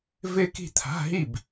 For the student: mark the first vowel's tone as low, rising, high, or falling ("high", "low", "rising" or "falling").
falling